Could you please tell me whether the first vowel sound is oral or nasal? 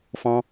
nasal